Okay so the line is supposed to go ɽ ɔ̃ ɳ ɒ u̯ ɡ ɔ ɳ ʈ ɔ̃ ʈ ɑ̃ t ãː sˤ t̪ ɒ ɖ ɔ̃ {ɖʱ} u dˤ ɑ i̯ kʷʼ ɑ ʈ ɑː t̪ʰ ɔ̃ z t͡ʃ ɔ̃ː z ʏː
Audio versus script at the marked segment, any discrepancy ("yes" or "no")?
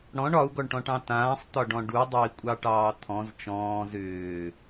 yes